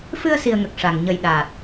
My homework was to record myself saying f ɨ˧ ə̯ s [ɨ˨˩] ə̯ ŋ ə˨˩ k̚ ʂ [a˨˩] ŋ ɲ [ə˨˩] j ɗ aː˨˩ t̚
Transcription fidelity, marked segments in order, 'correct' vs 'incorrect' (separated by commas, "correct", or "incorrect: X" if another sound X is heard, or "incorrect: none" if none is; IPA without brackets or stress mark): incorrect: i˨˩, correct, correct